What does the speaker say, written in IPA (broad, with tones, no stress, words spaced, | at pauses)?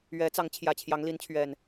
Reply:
ɥɛ˨˦t͡sɑ˨˦ŋ t͡ɕʰjä˨˩t͡ɕʰjɑ˨˦ŋli˨˦nt͡ɕʰɥɛ˨˩n